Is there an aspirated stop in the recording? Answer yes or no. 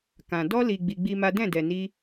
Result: no